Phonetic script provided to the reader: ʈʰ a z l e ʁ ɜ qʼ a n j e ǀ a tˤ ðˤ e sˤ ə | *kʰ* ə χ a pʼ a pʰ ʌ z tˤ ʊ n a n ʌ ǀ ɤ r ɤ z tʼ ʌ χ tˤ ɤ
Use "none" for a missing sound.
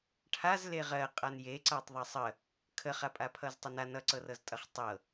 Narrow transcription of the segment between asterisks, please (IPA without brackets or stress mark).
kʰ